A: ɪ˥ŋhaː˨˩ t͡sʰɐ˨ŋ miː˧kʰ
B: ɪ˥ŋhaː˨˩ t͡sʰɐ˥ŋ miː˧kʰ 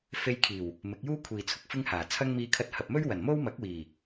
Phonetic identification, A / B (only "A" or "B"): B